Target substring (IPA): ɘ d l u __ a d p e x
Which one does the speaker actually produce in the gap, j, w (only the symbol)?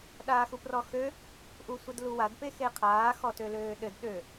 w